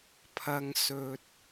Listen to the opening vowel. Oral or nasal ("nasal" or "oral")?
oral